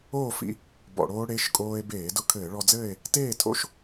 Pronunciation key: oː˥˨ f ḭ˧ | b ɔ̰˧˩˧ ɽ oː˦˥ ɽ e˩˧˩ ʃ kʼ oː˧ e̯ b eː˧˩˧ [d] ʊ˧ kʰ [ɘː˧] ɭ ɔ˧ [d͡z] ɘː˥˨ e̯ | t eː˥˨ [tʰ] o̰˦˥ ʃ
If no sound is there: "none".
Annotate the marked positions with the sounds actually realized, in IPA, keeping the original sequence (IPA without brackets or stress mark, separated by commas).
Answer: d, ɘː˧˩˧, d͡z, tʰ